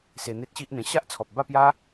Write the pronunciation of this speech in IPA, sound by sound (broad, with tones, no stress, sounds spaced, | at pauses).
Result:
s e˧ n̪ e˦ t̚ ɕ i˦ ʔ n̪ ẽ˧ ɕ a˦ ʔ t͡sʰ ɔ˨ p̚ b a˥˧ p j a˦